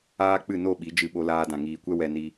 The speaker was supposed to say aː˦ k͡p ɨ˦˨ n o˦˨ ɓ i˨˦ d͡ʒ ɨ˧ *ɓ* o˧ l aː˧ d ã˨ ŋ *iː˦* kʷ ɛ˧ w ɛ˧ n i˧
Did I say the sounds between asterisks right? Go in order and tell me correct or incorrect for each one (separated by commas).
correct, incorrect